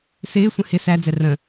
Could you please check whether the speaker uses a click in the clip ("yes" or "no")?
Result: no